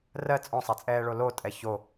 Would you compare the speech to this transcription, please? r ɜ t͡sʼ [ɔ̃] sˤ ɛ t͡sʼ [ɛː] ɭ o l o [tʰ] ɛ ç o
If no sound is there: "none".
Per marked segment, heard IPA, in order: ɔ̃, ɛː, tʼ

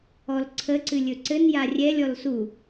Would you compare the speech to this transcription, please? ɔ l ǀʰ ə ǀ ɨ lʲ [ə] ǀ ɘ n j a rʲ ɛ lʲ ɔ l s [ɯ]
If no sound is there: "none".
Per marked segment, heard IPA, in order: ɵ, u

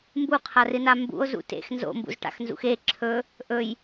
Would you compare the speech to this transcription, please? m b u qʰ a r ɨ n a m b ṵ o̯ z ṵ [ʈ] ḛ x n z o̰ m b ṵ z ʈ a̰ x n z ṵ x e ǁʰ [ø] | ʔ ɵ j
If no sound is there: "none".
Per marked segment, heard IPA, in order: t, ɵ

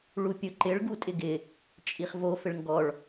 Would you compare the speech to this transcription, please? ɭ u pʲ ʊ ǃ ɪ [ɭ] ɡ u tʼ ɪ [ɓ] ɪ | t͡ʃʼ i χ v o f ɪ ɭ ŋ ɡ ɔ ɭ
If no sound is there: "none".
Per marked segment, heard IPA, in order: ɭ, ɡ

